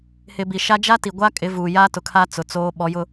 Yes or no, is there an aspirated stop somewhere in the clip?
yes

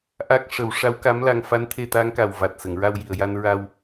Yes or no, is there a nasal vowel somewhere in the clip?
no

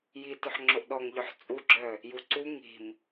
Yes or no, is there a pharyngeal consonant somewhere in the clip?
yes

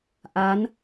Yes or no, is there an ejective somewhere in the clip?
no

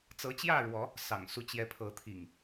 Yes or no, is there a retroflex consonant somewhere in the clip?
yes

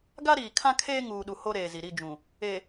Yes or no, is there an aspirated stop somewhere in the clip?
yes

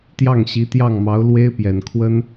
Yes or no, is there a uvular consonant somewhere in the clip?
no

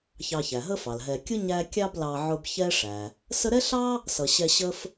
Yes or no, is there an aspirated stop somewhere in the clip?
no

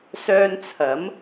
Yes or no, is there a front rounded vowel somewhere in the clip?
yes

